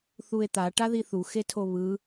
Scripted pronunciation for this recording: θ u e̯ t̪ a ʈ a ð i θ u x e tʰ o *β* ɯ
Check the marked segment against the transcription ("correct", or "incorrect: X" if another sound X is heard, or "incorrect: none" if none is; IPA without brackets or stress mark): correct